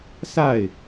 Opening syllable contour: falling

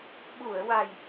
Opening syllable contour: low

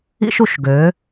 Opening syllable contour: high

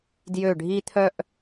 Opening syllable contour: falling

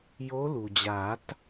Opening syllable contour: rising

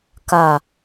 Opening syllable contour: low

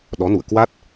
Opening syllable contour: rising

